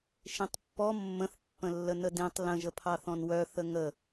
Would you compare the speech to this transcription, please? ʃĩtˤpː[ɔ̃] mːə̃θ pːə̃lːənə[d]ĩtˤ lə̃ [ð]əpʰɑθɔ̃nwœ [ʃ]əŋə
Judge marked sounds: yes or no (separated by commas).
no, yes, no, no